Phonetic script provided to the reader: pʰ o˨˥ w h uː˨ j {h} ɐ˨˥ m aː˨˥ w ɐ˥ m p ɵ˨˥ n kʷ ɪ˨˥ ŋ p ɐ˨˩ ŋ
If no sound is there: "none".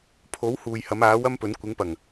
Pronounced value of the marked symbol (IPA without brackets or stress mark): h